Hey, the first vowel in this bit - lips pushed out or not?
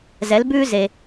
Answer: no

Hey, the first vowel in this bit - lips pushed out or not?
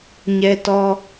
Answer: no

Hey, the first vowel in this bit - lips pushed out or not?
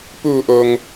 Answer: yes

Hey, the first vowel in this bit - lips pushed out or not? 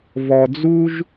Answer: yes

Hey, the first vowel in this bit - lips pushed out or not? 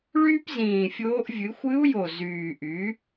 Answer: yes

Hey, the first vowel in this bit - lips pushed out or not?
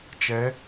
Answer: no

